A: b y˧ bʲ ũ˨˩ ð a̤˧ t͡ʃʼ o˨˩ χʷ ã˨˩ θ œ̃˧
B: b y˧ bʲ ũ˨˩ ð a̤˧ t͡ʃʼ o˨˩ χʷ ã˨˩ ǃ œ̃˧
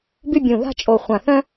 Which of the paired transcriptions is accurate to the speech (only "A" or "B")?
A